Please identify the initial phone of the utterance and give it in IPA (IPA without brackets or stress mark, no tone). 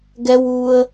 ɡ